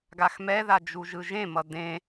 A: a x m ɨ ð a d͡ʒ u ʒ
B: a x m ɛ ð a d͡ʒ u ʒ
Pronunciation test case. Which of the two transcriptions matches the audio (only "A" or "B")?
B